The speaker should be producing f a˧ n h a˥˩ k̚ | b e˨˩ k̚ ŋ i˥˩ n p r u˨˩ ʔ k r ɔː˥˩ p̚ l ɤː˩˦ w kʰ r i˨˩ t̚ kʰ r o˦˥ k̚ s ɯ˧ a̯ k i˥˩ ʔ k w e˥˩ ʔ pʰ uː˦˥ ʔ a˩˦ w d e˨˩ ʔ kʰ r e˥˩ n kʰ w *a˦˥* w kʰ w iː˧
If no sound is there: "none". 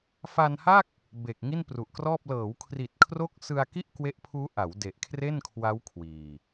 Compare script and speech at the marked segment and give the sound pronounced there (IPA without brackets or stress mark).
a˦˥